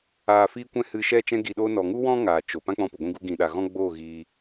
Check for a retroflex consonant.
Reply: absent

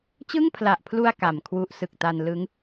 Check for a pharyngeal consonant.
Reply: absent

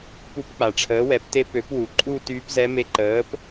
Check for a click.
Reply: present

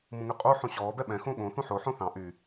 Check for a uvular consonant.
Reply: present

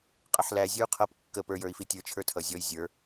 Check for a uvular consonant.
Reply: present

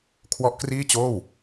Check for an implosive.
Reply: absent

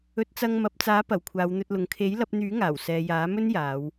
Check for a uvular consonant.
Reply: absent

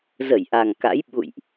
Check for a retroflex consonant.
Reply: absent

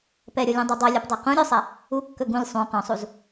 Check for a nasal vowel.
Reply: present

